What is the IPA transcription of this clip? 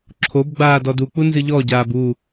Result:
ǁʰ o b ɡ͡b aː d ɔ d u k͡p u n z ɨ ʎ ɔ ɟ aː b u

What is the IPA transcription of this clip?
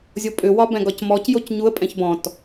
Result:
zʲ o pʼ ʏ w ɒ b ɛ̃ ɡ ɒ c m ɔ c j o c ɲ u ə̯ pʼ ɛ̃ ç b ɔ̃ t

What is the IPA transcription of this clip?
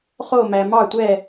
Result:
χ o˥˧ m æ˧ m ɑ˥˧ tʷ ɛ˥˧

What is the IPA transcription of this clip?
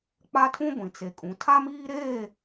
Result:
k͡p a˦ tʰ ũ˦ ɡʷ ĩ˨ t͡s e˨ kʼ ũ˨ tʰ a˦ m iː˦ ɾ eː˦˨

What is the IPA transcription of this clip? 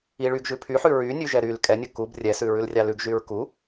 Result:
i ɭ y ɡ ʒ ʉ pʰ y ħ ʉ ɹ y nʲ ʉ ʒ ɛ ɾ y l kʼ ɛ nʲ ɵ k u b rʲ ɛ s ʉ ɹ ʉ l rʲ ɑ l ʉ ɡ ʒ y ɹ k u

